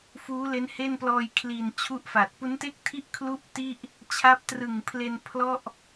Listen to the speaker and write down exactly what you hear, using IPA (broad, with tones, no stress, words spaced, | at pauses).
fuː˦˥le˦˥n he˥˩nplɔː˧j kʰli˨˩n t͡ɕʰu˥˩ʔfaː˨˩t̚ pu˦˥nte˥˩k̚tʰi˥˩ʔ kʰlu˥˩ʔti˥˩ʔ | t͡ɕʰa˦˥p̚trɯ˨˩ŋpʰle˧n pʰlɔ˥˩ʔ